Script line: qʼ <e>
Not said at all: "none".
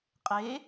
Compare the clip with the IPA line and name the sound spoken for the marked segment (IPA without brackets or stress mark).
e